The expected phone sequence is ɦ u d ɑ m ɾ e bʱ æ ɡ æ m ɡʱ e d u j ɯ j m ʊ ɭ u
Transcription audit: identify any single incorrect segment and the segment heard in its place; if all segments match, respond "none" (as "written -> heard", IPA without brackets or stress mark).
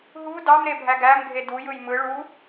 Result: ʊ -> ɯ